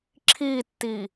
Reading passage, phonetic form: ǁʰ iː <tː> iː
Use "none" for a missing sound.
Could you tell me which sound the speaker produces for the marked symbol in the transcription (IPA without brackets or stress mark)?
tː